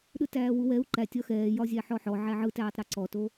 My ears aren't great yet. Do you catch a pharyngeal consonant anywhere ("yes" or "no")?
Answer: yes